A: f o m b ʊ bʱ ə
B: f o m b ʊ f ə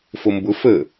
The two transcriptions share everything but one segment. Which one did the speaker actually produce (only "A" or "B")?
B